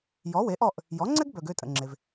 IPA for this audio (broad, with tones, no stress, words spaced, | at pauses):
jɔ˩˥we˩˥ʔɔ˥˩ʔ | jɔ˩˥ŋ͡ǀɛ˥ɡ bœ˩ɡ ø˥˩tʼə̰˩ŋ͡ǁe˩v